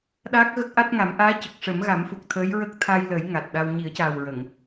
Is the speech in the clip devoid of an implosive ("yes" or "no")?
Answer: no